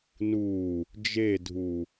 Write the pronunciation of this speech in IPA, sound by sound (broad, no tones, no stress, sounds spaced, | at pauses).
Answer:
n u | d͡ʒ e dʱ u